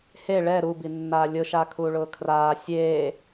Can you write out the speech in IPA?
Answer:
h e ɭ ɛ ɾ u b i nː aː lʲ ʊ ʃ a kʰ uː ɭ ʊː kʰ r aː sʲ eː

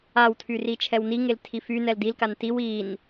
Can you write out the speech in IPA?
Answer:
a w tʰ y r i t͡ʃʰ ɛ w n i ŋ e l tʰ i f y n ɛ l d i l k a n t i w i n

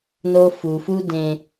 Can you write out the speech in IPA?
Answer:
n o˦ f u˨ f u˦ d ẽ˨

